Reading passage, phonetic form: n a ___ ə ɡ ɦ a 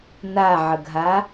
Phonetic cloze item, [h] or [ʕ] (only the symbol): ʕ